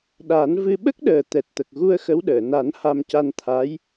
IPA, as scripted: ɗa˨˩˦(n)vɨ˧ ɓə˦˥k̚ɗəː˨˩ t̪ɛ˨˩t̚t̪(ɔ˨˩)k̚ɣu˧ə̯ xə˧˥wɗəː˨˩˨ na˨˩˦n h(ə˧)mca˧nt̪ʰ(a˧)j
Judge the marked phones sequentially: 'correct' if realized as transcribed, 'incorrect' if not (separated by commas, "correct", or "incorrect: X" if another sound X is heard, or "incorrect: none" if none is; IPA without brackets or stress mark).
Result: correct, incorrect: ə˨˩, incorrect: a˧, incorrect: a˧˥